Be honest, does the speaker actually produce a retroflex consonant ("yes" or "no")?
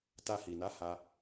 no